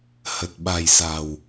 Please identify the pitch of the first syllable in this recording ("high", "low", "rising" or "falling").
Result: low